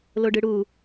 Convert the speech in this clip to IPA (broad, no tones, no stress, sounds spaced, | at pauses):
l o ɖ ɯ ɽ u